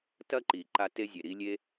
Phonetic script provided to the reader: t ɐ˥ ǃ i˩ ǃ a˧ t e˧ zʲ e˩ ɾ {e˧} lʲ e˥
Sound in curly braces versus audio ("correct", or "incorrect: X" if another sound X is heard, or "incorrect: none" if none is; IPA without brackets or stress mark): incorrect: i˧